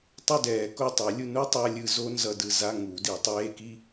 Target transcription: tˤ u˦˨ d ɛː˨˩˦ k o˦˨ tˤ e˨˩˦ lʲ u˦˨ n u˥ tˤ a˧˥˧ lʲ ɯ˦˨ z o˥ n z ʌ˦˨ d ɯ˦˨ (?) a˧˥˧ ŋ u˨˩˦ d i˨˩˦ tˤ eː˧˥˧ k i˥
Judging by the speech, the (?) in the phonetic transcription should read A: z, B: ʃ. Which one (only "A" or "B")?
A